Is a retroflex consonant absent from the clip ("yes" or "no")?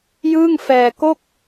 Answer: yes